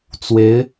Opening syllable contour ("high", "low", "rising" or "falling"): rising